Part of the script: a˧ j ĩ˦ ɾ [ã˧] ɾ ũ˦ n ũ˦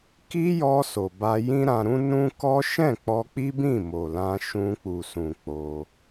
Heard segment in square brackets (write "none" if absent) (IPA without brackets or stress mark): ã˧